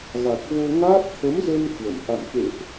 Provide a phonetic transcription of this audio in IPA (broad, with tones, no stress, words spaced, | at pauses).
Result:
ɣa˨˩k̚vo˧ŋaː˦˥p̚ t̪ʰə˨˦mzə˧n kwə̰˧˨m ʔa̰˧˨mkḛ˧˨ʔ